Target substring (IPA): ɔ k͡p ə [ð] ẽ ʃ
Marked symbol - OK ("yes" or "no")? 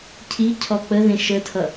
yes